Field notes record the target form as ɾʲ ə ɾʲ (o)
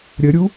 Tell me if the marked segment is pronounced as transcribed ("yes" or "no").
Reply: no